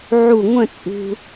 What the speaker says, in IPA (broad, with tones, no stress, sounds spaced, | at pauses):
ʕ u˧˩ ŋʷ ə̃˥˧ t͡sʼ ṳ˧